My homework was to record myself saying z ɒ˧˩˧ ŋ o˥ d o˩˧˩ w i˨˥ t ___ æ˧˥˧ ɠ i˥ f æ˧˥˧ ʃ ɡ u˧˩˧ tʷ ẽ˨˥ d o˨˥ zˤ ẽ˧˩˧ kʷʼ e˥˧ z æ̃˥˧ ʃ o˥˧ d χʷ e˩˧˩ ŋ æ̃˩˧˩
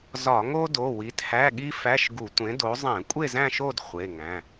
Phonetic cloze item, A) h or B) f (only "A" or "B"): A